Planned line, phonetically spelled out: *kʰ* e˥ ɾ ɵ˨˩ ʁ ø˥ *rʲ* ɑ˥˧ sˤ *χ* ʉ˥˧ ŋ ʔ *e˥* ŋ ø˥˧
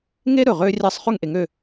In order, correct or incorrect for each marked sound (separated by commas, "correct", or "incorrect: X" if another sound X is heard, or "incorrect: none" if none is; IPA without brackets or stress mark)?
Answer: incorrect: ŋ, correct, correct, incorrect: e˨˦